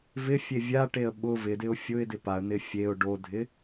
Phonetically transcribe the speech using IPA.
v ɪ fʲ e vʲ a ʈ e ə̯ ɓ ʊ v ɪ d ɪ ʊ̯ fʲ ʊ ɪ̯ d ɪ p a ə̯ n̪ ɪ fʲ e ʊ̯ ɖ o dʱ ɪ

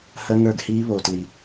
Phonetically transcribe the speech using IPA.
h ɜ˦˥ ŋ ə˞˦˨ ɡ h iː˦˥ β o˩ t l i˩

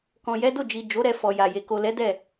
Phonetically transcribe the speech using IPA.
k ɔ̃˨ j ɛ˨˦ d o˦˨ d͡ʒ i˨ d͡ʒ o˨˦ ɾ ɛ˧ f ɔ˨ j a˨ j e˨ k o˨ l ɛ˨˦ d ɛ˦˨

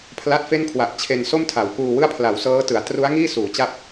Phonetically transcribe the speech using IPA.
pʰ l a˦˥ t̚ f e˥˩ n kʰ w a˨˩ ʔ t͡ɕʰ e˧ n s o˥˩ m tʰ a˩˦ w k uː˧ w ɯ˥˩ a̯ pʰ l a˩˦ w s ɤː˦˥ t ɯ˩˦ a̯ t r u˦˥ a̯ ŋ iː˥˩ s uː˩˦ t͡ɕ a˦˥ p̚

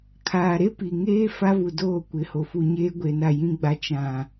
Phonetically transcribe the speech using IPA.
kʰ aː˨ ɾ e˦ p i˨ ŋ eː˦ f a˦ v u˨ d oː˦˨ kʷ ɪ˨˦ h o˨ f u˨ ɲ eː˦ ɡʷ e˨ n a˦˨ j ĩ˦ ɡ͡b a˦ t͡ʃ ã˨

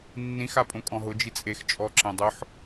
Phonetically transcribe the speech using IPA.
nː ĩ x a pʼ õ kʼ ɔ̃ ɦ ʊ d͡ʒ i t͡sʼ e x t͡ʃʼ ɔ ǁ ẽ dˤ ʊ ħ

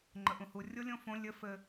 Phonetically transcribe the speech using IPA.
ŋ͡ǃ ə ʔ ũ h u rʲ o lʲ õ f õ lʲ ɘ f ɘ

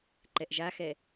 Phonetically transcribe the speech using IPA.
ǃ ɛ ʔ ʒ a x ɛ

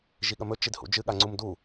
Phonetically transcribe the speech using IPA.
ʒ i ɠ ɐ m ɵ t͡ʃ i d h ṵ d͡ʒ ɨ ɠ a ŋ͡ǀ u m d u

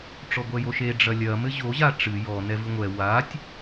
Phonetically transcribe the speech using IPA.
ʈ͡ʂ ɔ ɡʷ ɛ j o ʃ e ɖ͡ʐ ɐ lʲ ɐ m ɘ ʑ o ʑ a ʈ͡ʂ ɨ j ɔ n ɛ v ɨ ŋʷ ɛ w a tʲ

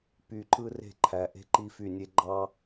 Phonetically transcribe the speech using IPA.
p y˨ ǃ ɯ˦ r e̤˦˨ ǃʰ æ˨ ʔ e̤˦ ǃ i˦ f y˦˨ nʲ e˦ ɡ͡ǃ ɑ˦

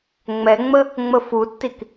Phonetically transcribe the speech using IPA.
ŋ͡m ɛ ŋ͡m ə | ŋ͡m ə f u tː i k

